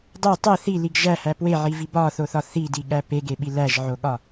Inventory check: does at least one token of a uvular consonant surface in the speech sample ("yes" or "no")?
no